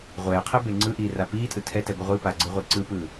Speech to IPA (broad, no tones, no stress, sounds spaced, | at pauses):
ʁʷ ɛː qʰ ɛ b e ŋ͡ǀ ɯ ʔ iː r a p iː tʼ ɯ tʰ ɛ t ɛ ɡʷ ɯ ʁʷ i p a ɡ͡ǀ ɯ ʁʷ i ǀ ɯ p ɯː